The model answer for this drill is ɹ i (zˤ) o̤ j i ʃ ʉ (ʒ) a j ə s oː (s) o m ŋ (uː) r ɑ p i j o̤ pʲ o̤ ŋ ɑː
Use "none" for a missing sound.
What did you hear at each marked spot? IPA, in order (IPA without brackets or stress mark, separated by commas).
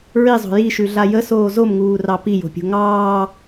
zˤ, ɮ, z, uː